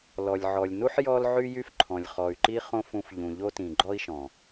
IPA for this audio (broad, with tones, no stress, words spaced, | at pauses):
lɔ˨lʲʕɔ˨lʲnu˦ħ jɔ˦lʕy˦jy˦fǃʰɔ̃˨lʲ χɔ˨y̯ǃi˦ χõ˦fũ˧f ʎũ˨ʎo˦tĩ˨ ɡ͡ǃɔ˦i̯ʃɔ̃˨